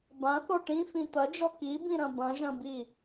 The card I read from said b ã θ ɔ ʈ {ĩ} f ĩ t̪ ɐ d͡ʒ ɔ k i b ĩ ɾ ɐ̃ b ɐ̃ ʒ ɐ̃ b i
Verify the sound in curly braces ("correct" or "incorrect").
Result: correct